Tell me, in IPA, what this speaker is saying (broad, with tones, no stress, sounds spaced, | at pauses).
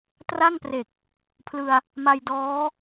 t r a˥˩ ŋ p r e˨˩ k̚ | pʰ l ɯ˧ a̯ | m a˧ j d ɔː˦˥